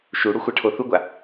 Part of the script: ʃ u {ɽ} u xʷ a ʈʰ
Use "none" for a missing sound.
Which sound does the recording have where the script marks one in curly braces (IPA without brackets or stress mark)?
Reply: ɽ